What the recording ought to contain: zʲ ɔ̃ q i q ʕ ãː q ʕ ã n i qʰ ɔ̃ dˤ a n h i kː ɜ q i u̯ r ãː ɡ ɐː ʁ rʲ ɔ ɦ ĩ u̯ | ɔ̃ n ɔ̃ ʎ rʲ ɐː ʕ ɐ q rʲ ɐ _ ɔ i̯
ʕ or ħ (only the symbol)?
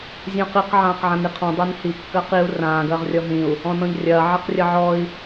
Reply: ʕ